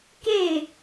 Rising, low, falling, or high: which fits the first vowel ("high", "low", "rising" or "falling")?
falling